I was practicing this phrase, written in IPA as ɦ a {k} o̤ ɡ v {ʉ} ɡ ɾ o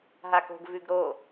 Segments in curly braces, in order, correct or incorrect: correct, correct

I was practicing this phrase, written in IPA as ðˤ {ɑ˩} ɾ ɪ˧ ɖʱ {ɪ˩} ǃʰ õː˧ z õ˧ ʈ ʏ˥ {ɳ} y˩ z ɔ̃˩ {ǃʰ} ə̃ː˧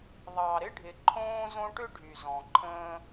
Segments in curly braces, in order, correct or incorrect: correct, correct, incorrect: ɖʱ, correct

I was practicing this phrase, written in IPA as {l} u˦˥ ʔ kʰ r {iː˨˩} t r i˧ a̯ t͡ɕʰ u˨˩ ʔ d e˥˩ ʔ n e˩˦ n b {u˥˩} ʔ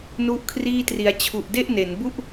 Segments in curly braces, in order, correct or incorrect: incorrect: n, incorrect: iː˥˩, correct

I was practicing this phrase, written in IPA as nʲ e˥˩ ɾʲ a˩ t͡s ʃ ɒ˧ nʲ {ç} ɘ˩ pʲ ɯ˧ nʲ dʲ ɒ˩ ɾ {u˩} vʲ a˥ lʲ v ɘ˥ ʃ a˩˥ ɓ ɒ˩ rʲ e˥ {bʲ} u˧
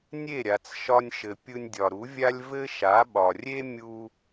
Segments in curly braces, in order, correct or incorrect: incorrect: ʃ, incorrect: u˩˥, incorrect: mʲ

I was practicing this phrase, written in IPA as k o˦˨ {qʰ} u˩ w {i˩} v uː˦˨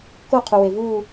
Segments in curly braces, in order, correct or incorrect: correct, incorrect: e˩

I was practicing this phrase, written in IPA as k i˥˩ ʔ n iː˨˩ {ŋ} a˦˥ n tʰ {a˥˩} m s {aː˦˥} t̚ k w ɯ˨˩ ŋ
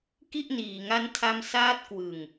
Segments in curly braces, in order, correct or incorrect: correct, incorrect: a˧, correct

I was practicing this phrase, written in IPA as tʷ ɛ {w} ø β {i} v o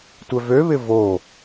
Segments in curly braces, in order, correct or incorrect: incorrect: v, incorrect: ɪ

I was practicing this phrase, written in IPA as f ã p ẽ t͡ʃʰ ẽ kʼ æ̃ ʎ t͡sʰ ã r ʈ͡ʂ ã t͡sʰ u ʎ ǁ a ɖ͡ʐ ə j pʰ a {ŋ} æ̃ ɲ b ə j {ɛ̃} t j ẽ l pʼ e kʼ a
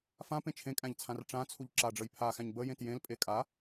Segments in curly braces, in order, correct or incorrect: incorrect: x, incorrect: ẽ

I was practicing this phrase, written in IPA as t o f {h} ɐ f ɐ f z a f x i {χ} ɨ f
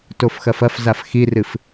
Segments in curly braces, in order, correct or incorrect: incorrect: x, incorrect: r

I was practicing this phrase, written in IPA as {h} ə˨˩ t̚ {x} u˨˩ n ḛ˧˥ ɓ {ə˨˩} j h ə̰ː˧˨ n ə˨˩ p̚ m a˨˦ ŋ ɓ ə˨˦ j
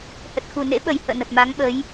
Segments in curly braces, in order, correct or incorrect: correct, correct, correct

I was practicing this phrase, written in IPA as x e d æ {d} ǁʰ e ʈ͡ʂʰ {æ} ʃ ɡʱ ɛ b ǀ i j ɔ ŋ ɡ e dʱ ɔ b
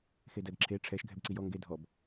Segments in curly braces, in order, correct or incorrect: correct, incorrect: ɛ

